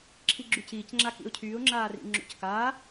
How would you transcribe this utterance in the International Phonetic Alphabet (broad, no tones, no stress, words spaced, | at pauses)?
ǁʰiɡ͡ǁyciːcŋ͡ǁa kḭʊ̯cʰyːʊ̯ŋ͡ǁaːrḭ ŋ͡ǁo̰ckaː